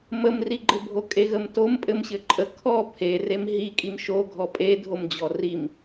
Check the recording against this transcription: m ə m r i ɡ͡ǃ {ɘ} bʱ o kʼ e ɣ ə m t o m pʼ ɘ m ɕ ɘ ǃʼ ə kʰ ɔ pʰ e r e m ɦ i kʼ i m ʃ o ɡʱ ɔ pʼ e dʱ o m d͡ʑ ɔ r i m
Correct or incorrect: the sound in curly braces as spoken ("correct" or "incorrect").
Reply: correct